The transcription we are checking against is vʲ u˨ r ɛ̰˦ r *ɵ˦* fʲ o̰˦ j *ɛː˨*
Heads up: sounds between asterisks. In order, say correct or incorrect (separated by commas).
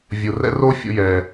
incorrect, correct